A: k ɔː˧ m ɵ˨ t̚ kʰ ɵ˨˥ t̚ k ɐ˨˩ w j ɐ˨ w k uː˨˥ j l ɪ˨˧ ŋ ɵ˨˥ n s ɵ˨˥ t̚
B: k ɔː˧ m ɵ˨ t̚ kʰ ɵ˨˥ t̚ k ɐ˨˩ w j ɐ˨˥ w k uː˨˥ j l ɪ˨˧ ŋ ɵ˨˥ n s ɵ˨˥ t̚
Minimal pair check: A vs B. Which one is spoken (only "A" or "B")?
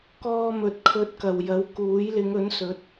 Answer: B